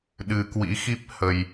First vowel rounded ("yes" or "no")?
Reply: no